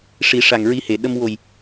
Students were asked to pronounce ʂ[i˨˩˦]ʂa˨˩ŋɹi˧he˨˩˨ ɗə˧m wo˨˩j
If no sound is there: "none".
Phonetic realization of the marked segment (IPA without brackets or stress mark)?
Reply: i˨˩˦